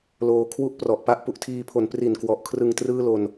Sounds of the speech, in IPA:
l oː˧ kʰ w u˥˩ ʔ p r ɔ˨˩ ʔ p a˥˩ ʔ p u˨˩ ʔ tʰ iː˧ pʰ o˩˦ n p r i˨˩ n k w ɔ˨˩ ʔ kʰ r ɯ˧ ŋ t r ɯː˥˩ l o˧ n

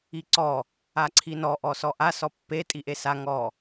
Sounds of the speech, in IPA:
i ǀ ɔ | a ǀʰ i n ɔ ʔ ɔ s ɔ ʔ a s ɔ pː e tʼ i ʔ e s a ŋ ɔ

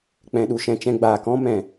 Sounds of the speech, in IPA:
k͡p ɛ̃˨ ɗ u˨ ʃ ɛ̃˧ t͡ʃ ɛ̃˧ ɡ͡b aː˨ k ɔ̃˦ m ɛ̃˨

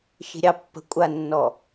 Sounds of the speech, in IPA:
ʃ i̤ ɾʲ ɑ pː ə̤ kʷʼ a nː ɔ

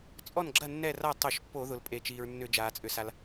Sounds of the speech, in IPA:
t͡sʼ ɔ˥˩ n ɡ͡ǁ ɐ˥˩ nː ɛ˥˩ r a˥˩ tˤ o˧˩˧ ʃ pː o˧˩˧ ð ʊ˩ l pʼ e˩ t͡ʃ iː˩ ɹ nː ʏ˧˩˧ d͡ʒ aː˩ t͡sʼ ʏ˩ s a˩ l

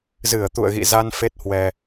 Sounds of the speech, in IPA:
z ɨ˧˩ ə̯ t̪ ṵ˧˨ ə̯ ɣ ḭ˧˨ z a˧ n f e˦˥ t̚ h w ɛ˧

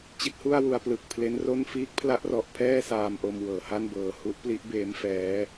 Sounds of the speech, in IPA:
t͡ɕ i˦˥ t̚ h u˥˩ a̯ w u˧ a̯ p l ɯ˨˩ k̚ pʰ l e˦˥ n r o˥˩ n f iː˦˥ k̚ pʰ l a˦˥ ʔ r ɔ˨˩ ʔ pʰ ɛː˥˩ s aː˧ m ʔ o˧ m w ɤː˩˦ h a˥˩ n b ɤː˨˩ h u˦˥ ʔ p l i˦˥ ʔ b eː˦˥ m f ɛː˦˥

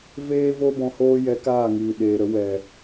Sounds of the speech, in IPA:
v eː˦ v o˦ b ɔ̃˧ h oː˦ j ɛ˧ k aː˦˨ ŋ iː˨ ɗ eː˨ ɾ ə˨˦ w ɛ˨

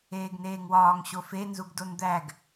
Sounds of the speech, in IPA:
eː ɡ n eː ŋ w ɒː ŋ ɕ o f e n z u ɡ d o n d̪ æ ɡ

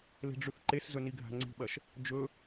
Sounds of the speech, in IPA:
l e̤ ɖ͡ʐ ʉ θ ǃ e s z ɵ n i ɡʱ a̤ ŋ͡ǀ i̤ ɓ ɐ ʃ | d͡ʒ ɵ

